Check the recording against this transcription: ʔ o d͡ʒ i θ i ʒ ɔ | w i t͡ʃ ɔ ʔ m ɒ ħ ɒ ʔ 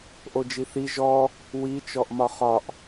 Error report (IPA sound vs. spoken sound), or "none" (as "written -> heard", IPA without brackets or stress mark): ħ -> χ